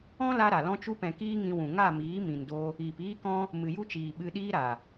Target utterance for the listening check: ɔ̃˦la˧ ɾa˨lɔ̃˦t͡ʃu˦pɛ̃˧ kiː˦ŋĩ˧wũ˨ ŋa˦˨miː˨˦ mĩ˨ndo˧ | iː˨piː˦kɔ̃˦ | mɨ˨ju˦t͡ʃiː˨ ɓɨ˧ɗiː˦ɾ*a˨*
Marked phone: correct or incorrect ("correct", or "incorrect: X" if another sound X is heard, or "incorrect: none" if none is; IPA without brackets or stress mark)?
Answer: correct